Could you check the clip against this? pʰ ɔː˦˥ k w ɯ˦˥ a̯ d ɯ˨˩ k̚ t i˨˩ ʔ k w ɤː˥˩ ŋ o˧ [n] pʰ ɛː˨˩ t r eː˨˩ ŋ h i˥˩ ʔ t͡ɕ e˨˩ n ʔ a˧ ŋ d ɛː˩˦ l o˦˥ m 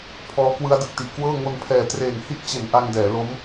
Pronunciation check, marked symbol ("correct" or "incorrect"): correct